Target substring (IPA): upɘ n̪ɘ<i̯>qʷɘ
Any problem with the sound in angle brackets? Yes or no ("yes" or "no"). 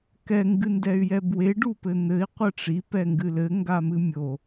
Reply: no